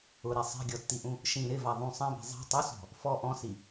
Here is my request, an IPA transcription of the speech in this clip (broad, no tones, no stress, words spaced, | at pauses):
ʊɾe sˤɛ̤ɡʲɔtːiʔũ | ʃĩ ɾɪva ðˤũ sˤɛ̃bɛ̤ zˤɛ̤ tˤʊsɔ̤ | fɔ ʔɔ̃si